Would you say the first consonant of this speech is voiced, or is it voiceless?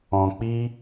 voiceless